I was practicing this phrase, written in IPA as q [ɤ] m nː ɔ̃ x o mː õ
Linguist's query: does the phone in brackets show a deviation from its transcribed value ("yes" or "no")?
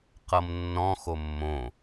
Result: no